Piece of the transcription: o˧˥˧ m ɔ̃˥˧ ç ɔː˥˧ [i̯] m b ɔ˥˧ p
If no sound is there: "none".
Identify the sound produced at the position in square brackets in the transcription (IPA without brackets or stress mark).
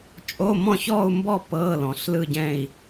u̯